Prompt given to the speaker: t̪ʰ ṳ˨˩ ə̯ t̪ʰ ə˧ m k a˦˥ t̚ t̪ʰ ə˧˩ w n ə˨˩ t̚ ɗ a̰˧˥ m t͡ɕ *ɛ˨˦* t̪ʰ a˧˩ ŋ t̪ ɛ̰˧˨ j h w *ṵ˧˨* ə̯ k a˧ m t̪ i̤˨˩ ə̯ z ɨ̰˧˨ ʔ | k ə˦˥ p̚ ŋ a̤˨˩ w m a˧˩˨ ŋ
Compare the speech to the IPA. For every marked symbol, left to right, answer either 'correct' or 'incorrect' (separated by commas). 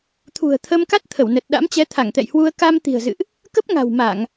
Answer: correct, incorrect